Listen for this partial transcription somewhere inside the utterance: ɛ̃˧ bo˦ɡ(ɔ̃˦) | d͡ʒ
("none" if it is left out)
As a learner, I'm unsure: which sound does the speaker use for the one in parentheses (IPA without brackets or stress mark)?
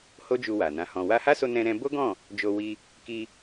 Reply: ɔ̃˦˨